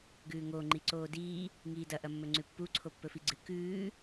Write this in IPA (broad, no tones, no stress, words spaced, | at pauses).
ɡʉːŋoː ŋ͡ǃiǀoːdiː | ŋiːdɐ ʔɐmːɵŋ͡ǀʉpːu ǀʰopːɵfiɡ͡ǀɨ kʉː